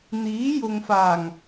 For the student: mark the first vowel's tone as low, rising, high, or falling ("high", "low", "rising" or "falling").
rising